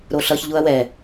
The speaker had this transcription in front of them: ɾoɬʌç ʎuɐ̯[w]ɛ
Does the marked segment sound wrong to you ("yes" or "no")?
no